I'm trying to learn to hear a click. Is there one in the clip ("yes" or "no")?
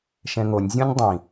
no